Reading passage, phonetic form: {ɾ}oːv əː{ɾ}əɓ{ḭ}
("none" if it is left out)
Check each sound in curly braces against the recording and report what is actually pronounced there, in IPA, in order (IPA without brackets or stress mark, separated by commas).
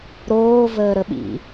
ɾ, ɾ, ḭ